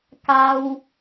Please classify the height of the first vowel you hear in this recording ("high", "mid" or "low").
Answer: low